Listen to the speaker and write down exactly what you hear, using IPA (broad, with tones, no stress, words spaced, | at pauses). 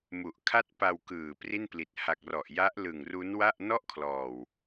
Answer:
mu˨˩ʔkʰa˥˩t̚ pa˧wkɯː˨˩ pri˥˩npli˨˩t̚ ha˨˩k̚ rɔ˨˩ʔja˦˥ʔ lɯ˨˩ŋru˦˥nwa˥˩ʔ nɔ˥˩ʔkʰlɔː˨˩w